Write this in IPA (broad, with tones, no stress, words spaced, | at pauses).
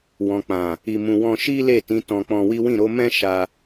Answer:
wɔ̃˨k͡pã˨ | i˧mũ˧ wɔ̃˧ ʃi˦le˦˨tĩ˨˦ tɔ̃˧k͡pɔ̃˧wi˦ wĩ˦˨ɾo˨˦mɛ̃˦ ʃa˧